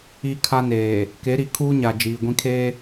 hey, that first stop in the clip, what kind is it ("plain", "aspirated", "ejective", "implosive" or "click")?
aspirated